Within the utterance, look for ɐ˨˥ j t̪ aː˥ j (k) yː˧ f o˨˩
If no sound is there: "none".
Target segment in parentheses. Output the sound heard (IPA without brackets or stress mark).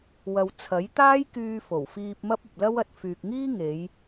k